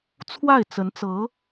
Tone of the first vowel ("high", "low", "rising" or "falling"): falling